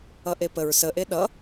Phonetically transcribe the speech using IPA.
ʌ ʔ e p ə ɹ s ə ʔ e ɗ ʌ

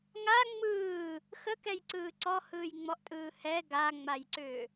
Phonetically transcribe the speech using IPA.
ŋ a ŋ͡m ɯː | x ə k ɛ j ǀ ɯː ǀ ɔ h ɯː j ŋ͡m ɔ ʔ tʼ ɯː h ɛ ɡ a ŋ͡m a j ǀ ʏː

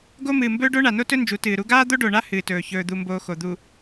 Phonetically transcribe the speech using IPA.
ɡ o˦ m ɨː˨ m b ɵː˦ ɖ o˦ ɳ a˨ n o˦ t ɵ˦ n d͡ʒ u˨˦ t ɨː˨ ɾ u˦ ɡ aː˦ d̪ o˦ ɖ o˨ ɳ a˦ h ɨː˨ t ɵː˨ ç ɵː˨ d̪ u˨ m b oː˨ x o˨ d̪ u˨

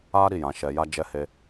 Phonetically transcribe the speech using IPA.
a˦ ɾ i˦˨ j ã˨˦ ʃ ɛ˧ j a˦ d͡ʒ ɛ˧ h e˧

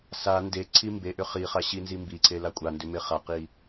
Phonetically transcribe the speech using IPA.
s a n d e ǀʰ i m b e ʔ ʏ χ i χ a ɕ i n z i m b i ǀʰ e l a kʷʼ a n d ʏ m e χ a q i

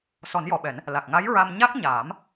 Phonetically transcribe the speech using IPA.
s ɔ˨˩˦ n j ɔ˨˩ ɓ ɛ˨˩˦ n | l a˨˩ k̚ ŋ a˧˥ j ɹ a˧ m ɲ a˦˥ k̚ ɲ aː˨˩˦ m

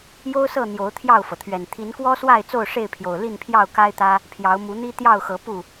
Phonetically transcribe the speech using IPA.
j o˦ ʊ̯ s ɤ˥˨ n̪ j o˨˦ ʊ̯ t̪ʰ j ɑ˥˨ ʊ̯ f ɤ˩ t̪ʰ ɥ ɛ˨˩ n t̪ʰ i˨˦ n k w ɔ˦ s w a˥˨ ɪ̯ t͡s o˥˨ ʊ̯ ʂ e˥˨ ɪ̯ pʰ j o˨˩ ʊ̯ l i˥˨ n pʰ j ɑ˥˨ ʊ̯ k a˦ ɪ̯ t̪ ä˦ | pʰ j ɑ˨˦ ʊ̯ m u˨˦ n̪ i˦ t̪ j ɑ˥˨ ʊ̯ x ɤ˨˦ p u˥˨

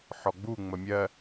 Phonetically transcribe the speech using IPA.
ħ ɔ ɡ͡b u ŋ͡m ə mʲ ɜ

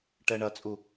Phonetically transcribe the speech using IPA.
ʈ ɛ ɳ ɐ t͡sʼ u

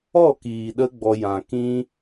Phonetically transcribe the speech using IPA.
ɔ˦˨ k iː˨ ɗ ə˧ ɡ͡b ɔ˧ j ã˨ k ĩ˦

